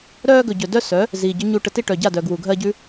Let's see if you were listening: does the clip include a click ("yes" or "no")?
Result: no